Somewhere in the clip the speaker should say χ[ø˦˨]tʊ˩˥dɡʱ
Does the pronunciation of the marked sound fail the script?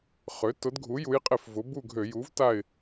yes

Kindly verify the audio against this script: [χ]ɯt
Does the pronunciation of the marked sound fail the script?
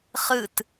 no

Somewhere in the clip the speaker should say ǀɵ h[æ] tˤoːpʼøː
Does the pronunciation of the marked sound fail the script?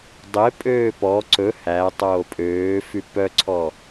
no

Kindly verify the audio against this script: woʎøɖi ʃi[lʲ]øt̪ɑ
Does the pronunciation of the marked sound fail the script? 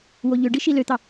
yes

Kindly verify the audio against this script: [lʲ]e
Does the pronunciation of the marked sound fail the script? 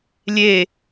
no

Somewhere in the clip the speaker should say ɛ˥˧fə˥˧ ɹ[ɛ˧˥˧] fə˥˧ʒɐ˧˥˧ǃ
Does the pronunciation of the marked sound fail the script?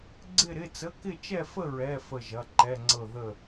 no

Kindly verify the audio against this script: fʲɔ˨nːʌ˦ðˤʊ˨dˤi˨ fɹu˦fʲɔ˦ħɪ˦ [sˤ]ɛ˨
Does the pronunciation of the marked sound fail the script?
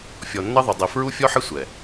yes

